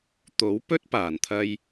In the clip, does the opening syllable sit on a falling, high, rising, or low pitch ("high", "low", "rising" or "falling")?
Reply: rising